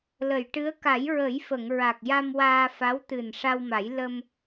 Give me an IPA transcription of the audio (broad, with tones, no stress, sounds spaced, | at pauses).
l ə˨˩˨ j ʈ ɨ˧˥ ə̯ k a˨˩˦ j ɹ ə˨˩˦ j f ə˨˩˨ ŋ ɹ a˨˩ k̚ j a˧ m w aː˧ f a˧˥ w t̪ ɨ˨˩ n ʂ a˧ w m a˨˩˦ j l ə˧ m